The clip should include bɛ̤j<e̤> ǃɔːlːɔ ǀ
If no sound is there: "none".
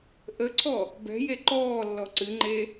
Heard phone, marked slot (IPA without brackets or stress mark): e